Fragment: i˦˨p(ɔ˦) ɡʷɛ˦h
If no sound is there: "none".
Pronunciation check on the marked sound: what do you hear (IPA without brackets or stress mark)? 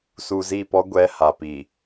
ɔ˦